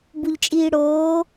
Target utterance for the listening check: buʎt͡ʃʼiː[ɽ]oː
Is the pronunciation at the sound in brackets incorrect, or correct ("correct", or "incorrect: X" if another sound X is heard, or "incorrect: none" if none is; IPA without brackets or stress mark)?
correct